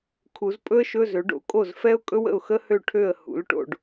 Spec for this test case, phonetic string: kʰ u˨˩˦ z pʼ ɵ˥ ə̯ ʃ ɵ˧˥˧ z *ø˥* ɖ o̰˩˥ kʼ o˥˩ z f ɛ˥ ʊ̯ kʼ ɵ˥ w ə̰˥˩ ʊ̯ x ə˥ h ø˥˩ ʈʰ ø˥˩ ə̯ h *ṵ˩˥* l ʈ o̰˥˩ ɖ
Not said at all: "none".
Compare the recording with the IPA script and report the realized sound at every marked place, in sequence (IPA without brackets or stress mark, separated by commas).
ø˩˥, ṵ˩˥